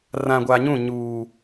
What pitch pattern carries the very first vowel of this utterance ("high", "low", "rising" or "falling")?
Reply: low